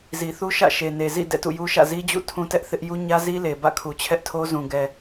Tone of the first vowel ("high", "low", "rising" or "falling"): low